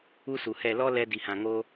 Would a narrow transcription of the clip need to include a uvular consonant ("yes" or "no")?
no